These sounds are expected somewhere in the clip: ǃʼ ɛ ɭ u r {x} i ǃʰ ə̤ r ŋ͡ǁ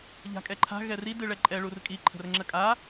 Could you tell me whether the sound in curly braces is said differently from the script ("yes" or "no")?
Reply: yes